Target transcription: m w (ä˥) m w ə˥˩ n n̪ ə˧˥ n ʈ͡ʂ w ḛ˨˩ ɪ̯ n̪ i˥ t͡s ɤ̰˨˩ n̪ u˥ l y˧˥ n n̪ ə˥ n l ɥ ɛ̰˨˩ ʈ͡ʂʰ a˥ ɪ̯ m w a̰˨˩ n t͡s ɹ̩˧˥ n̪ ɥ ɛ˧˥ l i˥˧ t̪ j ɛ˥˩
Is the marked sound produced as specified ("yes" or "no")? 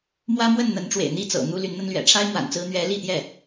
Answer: yes